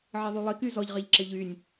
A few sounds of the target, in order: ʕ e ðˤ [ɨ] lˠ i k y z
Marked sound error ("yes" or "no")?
yes